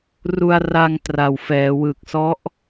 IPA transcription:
ru˧a̯ra˧ŋ tra˨˩w fɛː˩˦wɯ˨˩k̚sɔ˦˥ʔ

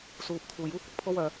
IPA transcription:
suː˨p̚ t̪ʰuː˨˩juː˥ kʷɪ˨k̚pʰo˥wœː˨

